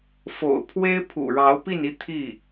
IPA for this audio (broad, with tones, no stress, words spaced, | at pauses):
fo̰˨˩ʊ̯pʰwe˥ɪ̯ pʰṵ˨˩ɻɑ˧˥ʊ̯pi˥˧ni˥˧ t̪ʰi˥˩